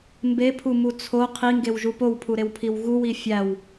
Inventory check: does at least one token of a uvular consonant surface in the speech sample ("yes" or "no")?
yes